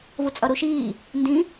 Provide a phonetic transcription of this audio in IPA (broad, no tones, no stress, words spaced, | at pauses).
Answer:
vut͡sʼʌɾuʃiː | ndĩ